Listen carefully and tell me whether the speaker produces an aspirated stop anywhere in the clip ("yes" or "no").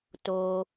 no